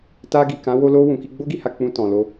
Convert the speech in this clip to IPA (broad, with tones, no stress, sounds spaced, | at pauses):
t a˧ ɡ i˨ k ã˨˦ w o˧ l o˧ w ũ˨ k i˧ ɡ͡b o˦ ɡ i˧ h a˧ k͡p ũ˧ t ɔ̃˨ l o˧